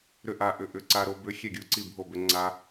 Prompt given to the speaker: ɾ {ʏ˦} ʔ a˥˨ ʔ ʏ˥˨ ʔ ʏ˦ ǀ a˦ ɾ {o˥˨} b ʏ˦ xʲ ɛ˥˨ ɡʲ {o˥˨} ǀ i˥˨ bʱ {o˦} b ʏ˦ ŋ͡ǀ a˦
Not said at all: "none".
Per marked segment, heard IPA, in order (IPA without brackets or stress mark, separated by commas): ʏ˥˨, o˦, u˥˨, o˥˨